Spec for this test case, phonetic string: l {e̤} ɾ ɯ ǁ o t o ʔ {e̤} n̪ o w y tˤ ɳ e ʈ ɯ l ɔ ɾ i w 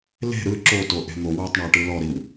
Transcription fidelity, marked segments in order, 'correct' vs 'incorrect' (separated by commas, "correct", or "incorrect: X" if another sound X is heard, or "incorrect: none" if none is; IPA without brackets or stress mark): correct, correct